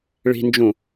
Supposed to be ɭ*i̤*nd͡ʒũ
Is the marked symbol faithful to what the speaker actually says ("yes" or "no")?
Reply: yes